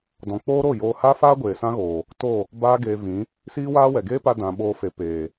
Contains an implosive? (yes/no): yes